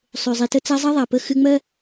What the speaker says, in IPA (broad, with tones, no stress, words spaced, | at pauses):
sˤø˩zˤi˩tə˧t͡sa˧ zˤɜ˥ðˤa˩pə˧ xɨ˧ŋ͡mɜ˥